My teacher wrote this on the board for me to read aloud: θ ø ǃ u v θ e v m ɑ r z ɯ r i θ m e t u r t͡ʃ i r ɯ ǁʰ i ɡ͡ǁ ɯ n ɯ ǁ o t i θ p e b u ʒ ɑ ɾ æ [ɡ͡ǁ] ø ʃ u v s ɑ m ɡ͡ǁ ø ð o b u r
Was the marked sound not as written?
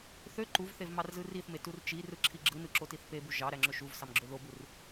yes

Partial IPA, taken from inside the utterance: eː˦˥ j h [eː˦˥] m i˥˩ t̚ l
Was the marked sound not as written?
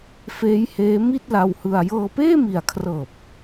no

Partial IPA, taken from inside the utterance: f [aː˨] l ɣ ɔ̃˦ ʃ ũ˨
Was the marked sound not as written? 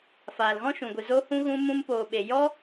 no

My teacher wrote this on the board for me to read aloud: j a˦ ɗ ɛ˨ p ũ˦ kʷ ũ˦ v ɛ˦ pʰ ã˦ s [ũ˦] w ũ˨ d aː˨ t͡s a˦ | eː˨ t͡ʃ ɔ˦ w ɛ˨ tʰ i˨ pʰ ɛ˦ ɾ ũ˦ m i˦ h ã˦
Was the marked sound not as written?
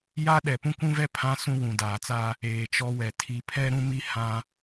no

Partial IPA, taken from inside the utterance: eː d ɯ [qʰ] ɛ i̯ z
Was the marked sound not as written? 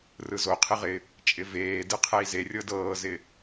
no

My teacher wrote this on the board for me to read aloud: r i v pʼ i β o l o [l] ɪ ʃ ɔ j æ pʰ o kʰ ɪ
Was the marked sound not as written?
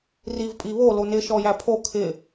yes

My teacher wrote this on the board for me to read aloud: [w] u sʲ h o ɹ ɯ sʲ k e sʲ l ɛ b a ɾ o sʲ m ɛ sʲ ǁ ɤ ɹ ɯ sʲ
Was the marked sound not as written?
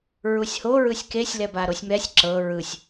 yes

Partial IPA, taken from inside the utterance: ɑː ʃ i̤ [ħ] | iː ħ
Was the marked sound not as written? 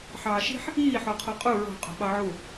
no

